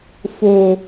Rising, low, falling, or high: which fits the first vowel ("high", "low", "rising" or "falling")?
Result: high